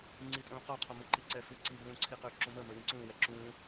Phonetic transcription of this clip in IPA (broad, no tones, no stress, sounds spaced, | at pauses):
ŋ͡ǀ i tʼ ũː q ɔ qʰ ɔ m u ǃ i ǀ ɛ f ʉ ǀ i b ũː ǀʰ i q ø ǁ ũ m ə m ə˞ w ĩ ǀ ũː w ɛ ǁ ũː